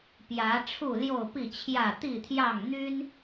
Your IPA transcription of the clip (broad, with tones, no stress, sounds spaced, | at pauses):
p j ä˨˦ ʈ͡ʂʰ u˥˨ l j o˥˨ ʊ̯ p i˥˨ t͡ɕʰ j ä˥˨ t̪ i˥˨ t̪ʰ j ɑ˥˨ ŋ n̪ y˦ n